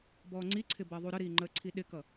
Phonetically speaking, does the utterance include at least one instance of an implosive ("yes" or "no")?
yes